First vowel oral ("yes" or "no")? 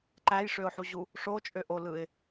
yes